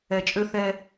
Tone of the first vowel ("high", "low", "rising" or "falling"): low